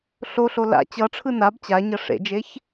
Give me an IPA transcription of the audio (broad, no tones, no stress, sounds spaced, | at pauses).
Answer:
ɬ o ɬ o l a̰ t͡ɕ ʌ ʈ͡ʂʰ ɯ n a b t͡ɕ a ɲ ʌ ʂ ḛ d͡ʒ e ç